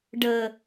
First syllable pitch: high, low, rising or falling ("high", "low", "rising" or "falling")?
low